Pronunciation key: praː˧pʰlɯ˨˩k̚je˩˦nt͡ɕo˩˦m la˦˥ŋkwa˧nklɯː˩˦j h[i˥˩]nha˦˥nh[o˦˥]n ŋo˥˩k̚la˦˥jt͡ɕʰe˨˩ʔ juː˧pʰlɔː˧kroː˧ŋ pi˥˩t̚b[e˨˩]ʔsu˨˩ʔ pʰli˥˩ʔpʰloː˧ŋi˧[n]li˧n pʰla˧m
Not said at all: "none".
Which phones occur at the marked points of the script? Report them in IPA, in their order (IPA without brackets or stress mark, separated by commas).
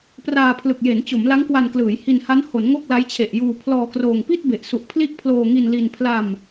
i˧, o˩˦, e˨˩, n